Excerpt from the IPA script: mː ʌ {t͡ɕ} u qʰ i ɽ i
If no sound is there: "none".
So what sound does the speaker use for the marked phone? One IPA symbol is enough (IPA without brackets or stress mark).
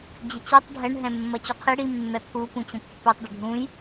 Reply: t͡ɕ